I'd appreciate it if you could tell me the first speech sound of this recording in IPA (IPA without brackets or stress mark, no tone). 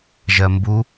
ʒ